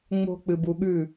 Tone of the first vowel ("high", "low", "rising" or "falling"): high